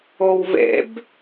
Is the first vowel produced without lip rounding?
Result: no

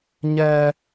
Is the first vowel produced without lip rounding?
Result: yes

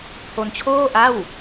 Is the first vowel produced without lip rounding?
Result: no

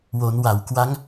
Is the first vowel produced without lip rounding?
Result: no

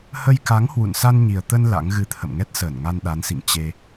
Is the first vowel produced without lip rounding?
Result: yes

